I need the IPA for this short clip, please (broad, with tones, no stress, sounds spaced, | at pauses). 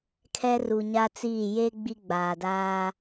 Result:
kʰ ɛ˦ r u˨ ɲ a˦ t͡s iː˦˨ j e˦ ɡ͡b i˦ ɡ͡b aː˨ d aː˦